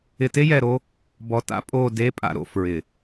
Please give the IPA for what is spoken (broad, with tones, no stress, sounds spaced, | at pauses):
ɪ˨ t e˦ j ɛ˨ ɾ o˦ | b ɔ˨ t a̰˦ pʼ o˦˨ d e˦ pʼ a̰˨ ɾ o̰˨ f ɹ ɪ˨